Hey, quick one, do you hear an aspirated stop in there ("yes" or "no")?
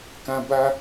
no